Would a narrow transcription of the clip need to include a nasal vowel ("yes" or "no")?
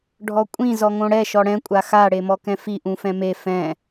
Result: yes